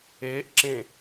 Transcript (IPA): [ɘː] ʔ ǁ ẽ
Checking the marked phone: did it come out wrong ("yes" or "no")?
yes